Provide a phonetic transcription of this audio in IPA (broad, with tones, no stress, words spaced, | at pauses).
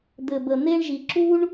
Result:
d̪ɘ˧bə˧ n̪e˥ɳʒi˧ ǁu˥ɳ